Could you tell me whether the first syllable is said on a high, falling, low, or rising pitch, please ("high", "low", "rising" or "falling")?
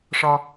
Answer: high